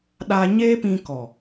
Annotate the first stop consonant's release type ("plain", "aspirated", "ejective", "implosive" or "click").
implosive